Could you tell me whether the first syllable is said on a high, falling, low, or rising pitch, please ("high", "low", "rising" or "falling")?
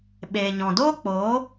low